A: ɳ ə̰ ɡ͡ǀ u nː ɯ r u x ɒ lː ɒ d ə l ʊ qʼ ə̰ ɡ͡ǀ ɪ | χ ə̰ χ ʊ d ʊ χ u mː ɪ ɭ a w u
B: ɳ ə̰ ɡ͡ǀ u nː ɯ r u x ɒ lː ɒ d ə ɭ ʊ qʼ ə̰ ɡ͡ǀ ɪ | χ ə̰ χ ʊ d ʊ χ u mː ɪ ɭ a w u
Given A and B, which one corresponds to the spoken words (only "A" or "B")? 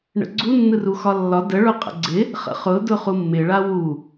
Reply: B